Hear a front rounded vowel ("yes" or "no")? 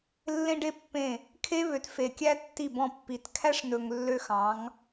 yes